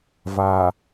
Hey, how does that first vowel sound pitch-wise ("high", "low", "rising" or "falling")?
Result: low